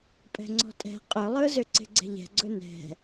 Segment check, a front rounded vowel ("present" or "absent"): present